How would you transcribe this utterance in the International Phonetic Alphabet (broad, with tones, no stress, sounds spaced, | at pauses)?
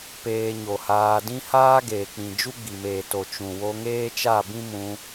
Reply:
p eː˧ ɲ o˨ h aː˧ d ĩ˦ h aː˦ ɡ eː˨ k͡p ĩ˨ d͡ʒ u˦ ɡ͡b i˨ m eː˨ t o˨ t͡ʃ ũ˨ w o˧ ŋ eː˦ t͡ʃ a˦˨ b ĩ˦ m ũ˧